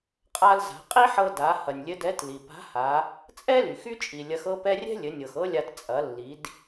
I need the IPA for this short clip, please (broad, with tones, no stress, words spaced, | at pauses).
qʼa˧lza̤˩˧qʼi˥ħɤ˧ da˩˧ hɐ˩nʲlʲɘ˧˥dɛ˧˥t li˩pa̤˧˥ha˩˧ | t͡sʼɛ˥ly˩x y˥t͡ʃʼi˩ lʲɐ˧˥xɤ˥pɛ˥ rʲɛ̤˥lʲɘ˩˧nʲɤ˩x ɤ˥lʲa˧t t͡sʼɐ˩˧lːi˩˧d